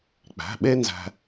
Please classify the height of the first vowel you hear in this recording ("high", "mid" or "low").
low